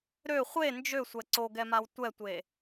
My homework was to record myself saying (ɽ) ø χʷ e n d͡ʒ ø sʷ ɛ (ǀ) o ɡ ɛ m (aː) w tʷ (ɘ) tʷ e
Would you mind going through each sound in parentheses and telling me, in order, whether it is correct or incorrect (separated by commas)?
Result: incorrect, correct, incorrect, incorrect